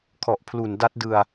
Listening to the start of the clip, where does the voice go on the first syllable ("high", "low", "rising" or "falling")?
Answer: low